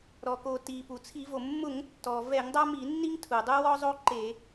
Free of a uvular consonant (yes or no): yes